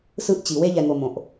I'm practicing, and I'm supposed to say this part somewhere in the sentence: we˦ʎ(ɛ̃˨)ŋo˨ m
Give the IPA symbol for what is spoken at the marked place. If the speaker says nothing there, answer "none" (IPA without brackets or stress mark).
ɛ˨